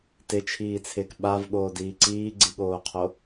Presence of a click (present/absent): present